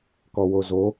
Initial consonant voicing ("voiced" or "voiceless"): voiceless